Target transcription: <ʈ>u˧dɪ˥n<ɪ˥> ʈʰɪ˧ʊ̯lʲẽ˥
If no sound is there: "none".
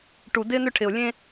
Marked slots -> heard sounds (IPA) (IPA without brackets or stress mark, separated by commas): ʈ, ʏ˥